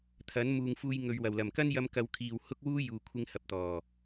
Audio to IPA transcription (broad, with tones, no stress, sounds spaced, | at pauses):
t̪ʰ ɐ˨˥ n m uː˨ ŋ f uː˧ j ŋ ɵ˨ ɥ w ɐ˨˩ w l ɐ˨˩ m k ɐ˥ n j ɐ˧ m k ɐ˨˧ w kʰ iː˨ w h ʊ˥ k̚ w uː˥ j uː˨ kʷʰ ɪ˧ ŋ h ɐ˨ p̚ t̪ ɔː˨˩